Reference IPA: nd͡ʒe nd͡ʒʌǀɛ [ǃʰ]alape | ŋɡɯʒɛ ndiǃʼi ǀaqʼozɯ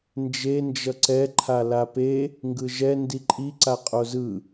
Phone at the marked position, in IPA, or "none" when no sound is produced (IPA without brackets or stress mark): ǃʰ